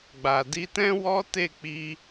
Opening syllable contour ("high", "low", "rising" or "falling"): low